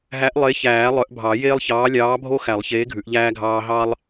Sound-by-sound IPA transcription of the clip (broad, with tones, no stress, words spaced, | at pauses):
ɦæ˨˥ʔlˠe˨˥çæː˨˩˦ lˠœ˨˩˦ʔbʱɑ˨˩˦jeː˦lˠçɑː˨˥ lʲɑː˨˥bʱo˦xæ˨˩˦lˠ çeː˨˥ɡʱʉ˨˩˦ʔʎæː˦ɡʱɑː˦ ɦɑ˦lˠ